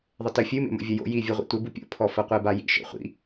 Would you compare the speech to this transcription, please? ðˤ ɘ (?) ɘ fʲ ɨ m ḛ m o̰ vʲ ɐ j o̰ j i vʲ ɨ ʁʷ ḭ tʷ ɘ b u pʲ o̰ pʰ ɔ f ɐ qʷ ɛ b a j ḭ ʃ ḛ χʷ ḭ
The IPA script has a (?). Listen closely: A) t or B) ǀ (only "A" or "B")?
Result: A